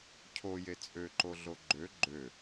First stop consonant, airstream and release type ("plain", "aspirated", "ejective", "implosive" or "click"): aspirated